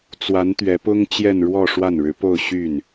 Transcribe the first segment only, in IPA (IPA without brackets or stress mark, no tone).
t͡s